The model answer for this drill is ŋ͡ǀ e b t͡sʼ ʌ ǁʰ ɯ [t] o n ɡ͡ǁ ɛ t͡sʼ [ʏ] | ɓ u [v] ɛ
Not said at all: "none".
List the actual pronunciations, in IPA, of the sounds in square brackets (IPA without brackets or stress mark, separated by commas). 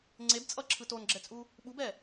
t, u, b